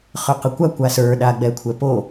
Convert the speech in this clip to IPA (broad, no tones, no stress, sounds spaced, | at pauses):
χ ə˞ q ə kʷ a kʷ a s ə˞ ɗ a ɡ͡b ɛ kʷʰ ɛ p o